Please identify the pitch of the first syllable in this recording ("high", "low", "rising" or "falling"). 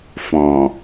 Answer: low